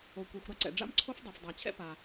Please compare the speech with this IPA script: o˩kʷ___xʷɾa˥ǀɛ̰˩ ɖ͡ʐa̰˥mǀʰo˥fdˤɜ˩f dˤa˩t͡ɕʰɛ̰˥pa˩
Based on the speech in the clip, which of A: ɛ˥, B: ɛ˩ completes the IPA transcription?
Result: B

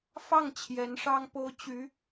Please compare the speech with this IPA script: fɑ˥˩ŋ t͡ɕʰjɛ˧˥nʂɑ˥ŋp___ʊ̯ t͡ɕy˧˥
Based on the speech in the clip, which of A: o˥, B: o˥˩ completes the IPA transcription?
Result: A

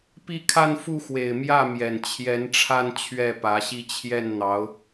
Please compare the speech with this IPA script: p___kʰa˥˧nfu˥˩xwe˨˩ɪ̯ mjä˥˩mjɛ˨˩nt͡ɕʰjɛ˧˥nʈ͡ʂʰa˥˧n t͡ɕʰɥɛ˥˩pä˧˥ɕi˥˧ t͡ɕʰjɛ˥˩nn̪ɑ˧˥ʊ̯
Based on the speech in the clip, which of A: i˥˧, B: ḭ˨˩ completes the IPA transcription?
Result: A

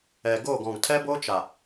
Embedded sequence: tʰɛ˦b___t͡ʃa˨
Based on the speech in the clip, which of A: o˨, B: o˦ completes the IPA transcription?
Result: B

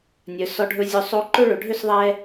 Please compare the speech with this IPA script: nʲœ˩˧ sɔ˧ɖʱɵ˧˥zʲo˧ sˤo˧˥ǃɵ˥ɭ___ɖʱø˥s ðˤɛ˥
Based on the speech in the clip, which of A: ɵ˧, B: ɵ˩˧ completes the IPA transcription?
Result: B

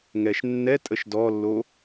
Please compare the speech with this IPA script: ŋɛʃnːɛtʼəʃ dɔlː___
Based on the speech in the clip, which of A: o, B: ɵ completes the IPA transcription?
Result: A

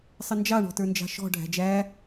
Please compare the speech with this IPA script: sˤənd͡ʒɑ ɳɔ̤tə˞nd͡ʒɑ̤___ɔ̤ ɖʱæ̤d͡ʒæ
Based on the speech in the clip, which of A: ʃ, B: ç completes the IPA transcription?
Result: A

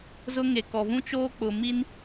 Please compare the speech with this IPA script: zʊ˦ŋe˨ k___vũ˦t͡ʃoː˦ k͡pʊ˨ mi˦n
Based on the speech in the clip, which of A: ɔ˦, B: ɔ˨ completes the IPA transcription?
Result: B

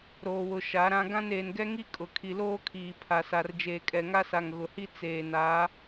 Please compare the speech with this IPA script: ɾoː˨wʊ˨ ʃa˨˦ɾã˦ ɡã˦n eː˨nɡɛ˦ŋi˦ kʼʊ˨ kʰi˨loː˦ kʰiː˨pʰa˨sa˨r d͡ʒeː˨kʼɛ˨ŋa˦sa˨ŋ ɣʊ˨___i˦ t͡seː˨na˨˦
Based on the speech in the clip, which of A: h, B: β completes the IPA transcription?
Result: A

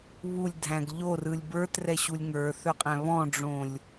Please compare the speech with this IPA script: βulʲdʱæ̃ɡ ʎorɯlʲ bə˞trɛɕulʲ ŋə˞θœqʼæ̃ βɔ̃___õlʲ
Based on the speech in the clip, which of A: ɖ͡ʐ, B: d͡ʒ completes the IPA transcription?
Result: A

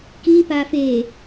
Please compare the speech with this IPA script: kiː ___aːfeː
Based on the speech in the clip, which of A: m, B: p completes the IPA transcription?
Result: B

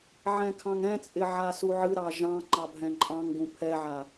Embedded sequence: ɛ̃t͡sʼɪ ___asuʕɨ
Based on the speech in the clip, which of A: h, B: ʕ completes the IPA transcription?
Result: B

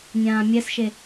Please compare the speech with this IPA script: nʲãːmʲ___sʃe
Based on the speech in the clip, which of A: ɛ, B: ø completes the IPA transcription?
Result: A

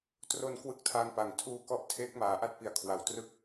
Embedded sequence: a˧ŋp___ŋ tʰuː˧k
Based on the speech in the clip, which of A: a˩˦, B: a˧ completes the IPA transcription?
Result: A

